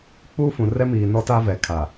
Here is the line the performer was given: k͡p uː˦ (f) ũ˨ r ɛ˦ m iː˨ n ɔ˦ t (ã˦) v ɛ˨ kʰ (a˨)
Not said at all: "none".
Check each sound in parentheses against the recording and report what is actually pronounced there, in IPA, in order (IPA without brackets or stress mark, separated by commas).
f, a˦, a˨